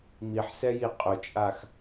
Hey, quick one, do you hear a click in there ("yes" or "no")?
no